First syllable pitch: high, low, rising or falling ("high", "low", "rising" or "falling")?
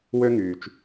high